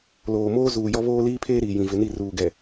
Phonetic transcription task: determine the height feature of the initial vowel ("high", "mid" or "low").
mid